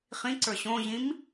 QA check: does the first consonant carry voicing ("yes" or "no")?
no